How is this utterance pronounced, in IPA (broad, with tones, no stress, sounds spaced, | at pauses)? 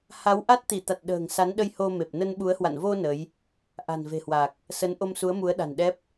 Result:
h a˨˦ w ʔ a˦˥ t̚ t̪ i˧˩ t̪ a˨˩ t̚ ɗ ə̤ː˨˩ ŋ s a˨˦ n ɗ ə˧ j h o˧ m e˨˩ p̚ n ə˧ n ɓ u˨˦ ə̯ h w a̰˧˨ n v o˧ n ə˨˦ j | ʔ a̤˨˩ n v e̤˨˩ h w a˨˩ k̚ | s ə˨˦ n ʔ o˧ m s u˨˦ ə̯ m u˨˦ ə̯ ɗ a̤˨˩ n ɗ ɛ˦˥ p̚